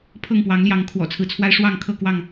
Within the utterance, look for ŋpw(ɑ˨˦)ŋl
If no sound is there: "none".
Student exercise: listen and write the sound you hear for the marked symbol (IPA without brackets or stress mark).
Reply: ɑ˨˦